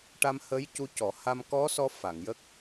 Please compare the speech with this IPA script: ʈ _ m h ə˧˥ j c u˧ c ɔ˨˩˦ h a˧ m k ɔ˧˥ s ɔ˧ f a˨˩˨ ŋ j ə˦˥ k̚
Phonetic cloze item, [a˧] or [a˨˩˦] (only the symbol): a˧